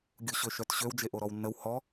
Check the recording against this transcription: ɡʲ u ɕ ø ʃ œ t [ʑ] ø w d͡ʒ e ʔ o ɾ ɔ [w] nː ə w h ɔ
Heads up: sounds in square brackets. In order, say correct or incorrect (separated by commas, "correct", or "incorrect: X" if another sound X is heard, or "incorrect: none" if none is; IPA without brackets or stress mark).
incorrect: ɕ, correct